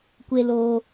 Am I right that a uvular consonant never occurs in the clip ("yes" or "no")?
yes